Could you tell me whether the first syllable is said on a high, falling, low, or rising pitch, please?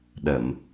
low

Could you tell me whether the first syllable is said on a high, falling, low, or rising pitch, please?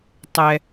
low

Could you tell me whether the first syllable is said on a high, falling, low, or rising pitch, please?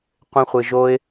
high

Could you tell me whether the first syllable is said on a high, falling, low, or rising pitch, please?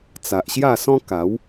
low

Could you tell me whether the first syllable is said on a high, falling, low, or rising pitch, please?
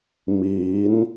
rising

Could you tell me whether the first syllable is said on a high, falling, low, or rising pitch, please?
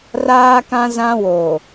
high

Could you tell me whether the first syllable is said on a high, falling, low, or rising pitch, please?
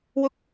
high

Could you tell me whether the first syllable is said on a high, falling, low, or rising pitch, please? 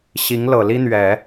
rising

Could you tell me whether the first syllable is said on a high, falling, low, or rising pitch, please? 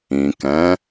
low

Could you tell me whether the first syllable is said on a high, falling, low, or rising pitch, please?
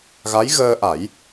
rising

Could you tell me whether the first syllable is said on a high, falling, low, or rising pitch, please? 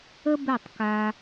high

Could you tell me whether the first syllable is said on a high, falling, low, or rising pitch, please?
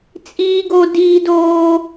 high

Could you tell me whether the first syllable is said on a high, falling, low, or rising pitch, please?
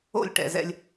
falling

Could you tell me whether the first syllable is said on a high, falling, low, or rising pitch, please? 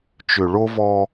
low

